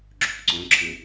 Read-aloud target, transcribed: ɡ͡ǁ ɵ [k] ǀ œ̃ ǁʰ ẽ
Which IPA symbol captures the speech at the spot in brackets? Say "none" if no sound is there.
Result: k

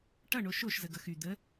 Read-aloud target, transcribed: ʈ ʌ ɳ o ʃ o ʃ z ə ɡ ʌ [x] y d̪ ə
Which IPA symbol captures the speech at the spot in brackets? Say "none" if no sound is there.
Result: x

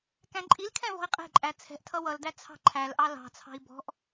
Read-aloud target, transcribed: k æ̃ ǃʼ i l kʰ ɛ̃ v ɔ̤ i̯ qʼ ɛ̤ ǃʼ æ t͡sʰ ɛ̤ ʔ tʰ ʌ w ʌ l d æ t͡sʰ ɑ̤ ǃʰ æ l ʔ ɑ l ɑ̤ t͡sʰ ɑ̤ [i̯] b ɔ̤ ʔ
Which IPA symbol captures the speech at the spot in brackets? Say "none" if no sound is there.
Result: i̯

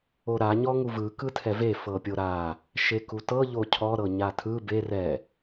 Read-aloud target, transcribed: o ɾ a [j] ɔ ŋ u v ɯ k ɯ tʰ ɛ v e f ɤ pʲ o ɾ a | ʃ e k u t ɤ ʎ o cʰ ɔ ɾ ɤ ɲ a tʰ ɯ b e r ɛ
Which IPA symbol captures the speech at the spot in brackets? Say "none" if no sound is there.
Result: ɲ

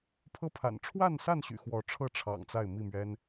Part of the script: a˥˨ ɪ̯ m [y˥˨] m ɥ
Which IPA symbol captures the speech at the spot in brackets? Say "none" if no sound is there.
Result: i˥˨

